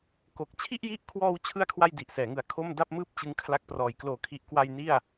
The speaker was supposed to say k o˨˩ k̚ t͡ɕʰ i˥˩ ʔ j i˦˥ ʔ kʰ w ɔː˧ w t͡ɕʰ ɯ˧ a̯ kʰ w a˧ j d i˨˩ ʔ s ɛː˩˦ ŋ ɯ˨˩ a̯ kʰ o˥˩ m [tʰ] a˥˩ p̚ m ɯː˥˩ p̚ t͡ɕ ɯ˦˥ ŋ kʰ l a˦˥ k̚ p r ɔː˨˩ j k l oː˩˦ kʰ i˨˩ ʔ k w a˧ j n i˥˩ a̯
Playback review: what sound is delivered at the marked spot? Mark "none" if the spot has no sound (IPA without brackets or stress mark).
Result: d